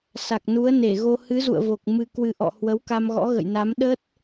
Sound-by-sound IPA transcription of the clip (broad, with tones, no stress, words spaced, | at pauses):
sa˨˩k̚nu˨˦ə̯ ne˧˩ɣo˧ hɨ˨˦zṵ˧˨ə̯vo˨˩k̚ mɨ˨˩kwɨ˨˩ ʔɔ̰˧˨hwə˨˦wka˧m ɣɔ̰˧˥ɣə̰˧˨jna˨˦m ɗə˦˥t̚